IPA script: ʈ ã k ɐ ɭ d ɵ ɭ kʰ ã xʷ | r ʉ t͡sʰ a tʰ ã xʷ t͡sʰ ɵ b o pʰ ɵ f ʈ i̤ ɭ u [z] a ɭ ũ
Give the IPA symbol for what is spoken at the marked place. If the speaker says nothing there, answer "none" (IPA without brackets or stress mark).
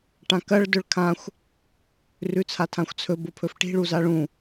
z